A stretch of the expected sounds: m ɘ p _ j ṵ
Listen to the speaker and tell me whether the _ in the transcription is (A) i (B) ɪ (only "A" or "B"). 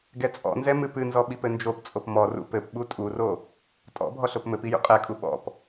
A